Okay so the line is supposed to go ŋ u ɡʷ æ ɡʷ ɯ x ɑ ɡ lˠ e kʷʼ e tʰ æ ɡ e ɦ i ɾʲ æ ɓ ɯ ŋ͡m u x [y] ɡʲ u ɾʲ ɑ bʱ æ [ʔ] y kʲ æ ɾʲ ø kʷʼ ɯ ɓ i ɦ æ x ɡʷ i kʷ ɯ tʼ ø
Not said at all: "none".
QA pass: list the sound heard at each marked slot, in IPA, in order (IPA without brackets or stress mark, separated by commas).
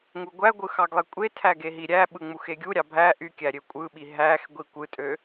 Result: e, ʔ